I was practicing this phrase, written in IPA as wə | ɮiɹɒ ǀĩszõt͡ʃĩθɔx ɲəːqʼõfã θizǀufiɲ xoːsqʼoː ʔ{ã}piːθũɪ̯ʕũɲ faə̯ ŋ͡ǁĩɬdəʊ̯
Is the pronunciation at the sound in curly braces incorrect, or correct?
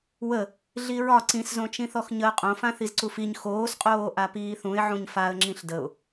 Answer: incorrect